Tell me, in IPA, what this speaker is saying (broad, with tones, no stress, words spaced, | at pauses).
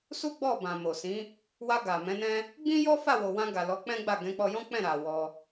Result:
su˦ɡ͡bɔ˦˨bã˨ mo˨ sĩ˨˦ | wa˧ɡa˨ mɛ̃˨˦nɛ̃˦ | ɡ͡bĩ˦jɔ˦ fa˦˨wo˨wã˧ɡa˨ lɔ˨˦k͡pɛ̃˦ɡ͡ba˦˨ ɡɛ̃˨˦k͡pɔ˧jɔ̃˦ k͡pɛ̃˦˨ ɾa˨ wɔ˧